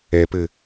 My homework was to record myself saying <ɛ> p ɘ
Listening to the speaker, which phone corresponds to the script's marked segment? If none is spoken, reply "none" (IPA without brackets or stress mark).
ɛ